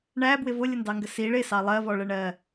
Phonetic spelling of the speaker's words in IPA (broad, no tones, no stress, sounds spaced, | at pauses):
ɳ æ b w ɪ v ʊ lʲ ə n d ɑ ŋ ɡ ə s i ɭ ɪ s ɑ lˠ ɜ v ɔ ɭ ə ɳ ɜ